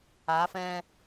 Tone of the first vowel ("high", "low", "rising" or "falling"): rising